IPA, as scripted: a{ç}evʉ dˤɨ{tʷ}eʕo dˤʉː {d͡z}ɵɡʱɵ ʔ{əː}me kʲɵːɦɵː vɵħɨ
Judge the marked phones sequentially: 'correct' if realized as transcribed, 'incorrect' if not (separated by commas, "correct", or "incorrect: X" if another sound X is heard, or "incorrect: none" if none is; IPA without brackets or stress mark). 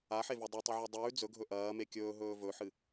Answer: incorrect: ħ, incorrect: tˤ, correct, incorrect: ɐː